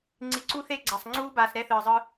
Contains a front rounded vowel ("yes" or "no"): no